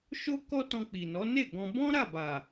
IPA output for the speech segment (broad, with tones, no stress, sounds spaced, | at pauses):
ʃ o˦ k ɔ˦ t ɔ̃˧ k͡p i˨ n ɔ˨˦ n e˦˨ ɡ ɔ̃˧ b ɔ̃˦ ɾ a˦˨ b a˨